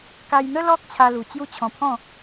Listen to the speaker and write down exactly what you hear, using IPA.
ka˧jn̪ə˦lɔ˦k̚ t͡ɕʰa˧ lu˨˩ t͡ɕju˦t͡ɕʰɔ̃˧pʰɔ̃˥˧

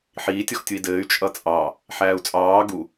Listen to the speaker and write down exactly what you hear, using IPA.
ħiːtʲ ɔxtʲui̯dɘːy̯ t͡ʃʼʌt͡sʼɑ | ħæːu̯t͡sʼɑː ɡu

